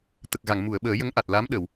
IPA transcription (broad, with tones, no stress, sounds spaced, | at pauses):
t̪ ə˨˩ k̚ ɣ a˨˩˨ ŋ m u˨˩˨ ə̯ ɓ əː˨˩˦ j ə˧˥ ŋ ʔ a˨˩ t̚ l a˧˥ m ɗ ə˨˩˨ w